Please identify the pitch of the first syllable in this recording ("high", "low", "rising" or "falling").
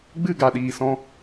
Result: falling